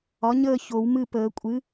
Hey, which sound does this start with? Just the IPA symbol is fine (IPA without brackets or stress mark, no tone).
ɒ